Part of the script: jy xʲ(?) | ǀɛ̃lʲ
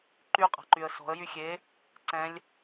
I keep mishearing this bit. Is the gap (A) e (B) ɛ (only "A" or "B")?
A